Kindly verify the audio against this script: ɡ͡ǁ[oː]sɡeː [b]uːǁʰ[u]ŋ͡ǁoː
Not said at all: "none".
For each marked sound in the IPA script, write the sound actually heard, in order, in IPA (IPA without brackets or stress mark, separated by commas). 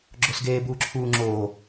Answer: o, b, uː